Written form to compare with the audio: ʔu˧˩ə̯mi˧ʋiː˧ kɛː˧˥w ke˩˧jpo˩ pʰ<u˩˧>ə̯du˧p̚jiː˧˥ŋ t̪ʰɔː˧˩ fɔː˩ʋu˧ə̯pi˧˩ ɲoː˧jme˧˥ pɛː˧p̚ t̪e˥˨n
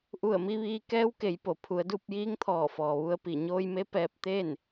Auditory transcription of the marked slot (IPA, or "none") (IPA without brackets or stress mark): u˩˧